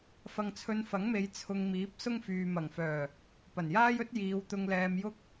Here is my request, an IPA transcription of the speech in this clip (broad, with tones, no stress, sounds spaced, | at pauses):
f ɐ˧ ŋ t͡sʰ ɵ˧ n f ɐ˨˥ ŋ m e˨˧ j t͡sʰ ʊ˧ ŋ m iː˨˥ p̚ s ʊ˥ ŋ f yː˨ m ɐ˨˩ ŋ f œː˨˩ | p ɐ˨˩ n j aː˥ j ɵ˥ t̚ j iː˨˧ w t̪ ʊ˧ ŋ l ɛː˧ m j ʊ˥ k̚